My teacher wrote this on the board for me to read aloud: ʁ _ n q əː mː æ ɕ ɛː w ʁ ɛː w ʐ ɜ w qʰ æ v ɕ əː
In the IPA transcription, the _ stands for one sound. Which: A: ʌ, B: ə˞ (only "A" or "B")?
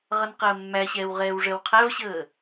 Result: A